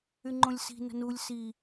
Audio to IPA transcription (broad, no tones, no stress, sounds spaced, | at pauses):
y ŋ͡ǃ õ lʲ s i̤ n ə̤ n u lʲ s i